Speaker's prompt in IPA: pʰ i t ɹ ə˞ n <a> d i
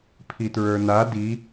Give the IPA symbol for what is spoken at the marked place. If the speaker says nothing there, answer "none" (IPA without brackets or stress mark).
a